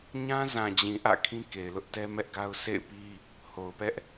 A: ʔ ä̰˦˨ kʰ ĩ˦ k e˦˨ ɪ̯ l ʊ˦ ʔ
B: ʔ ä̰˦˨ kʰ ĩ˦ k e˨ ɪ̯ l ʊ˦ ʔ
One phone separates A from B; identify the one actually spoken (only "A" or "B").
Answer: B